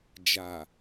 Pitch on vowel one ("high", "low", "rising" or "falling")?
low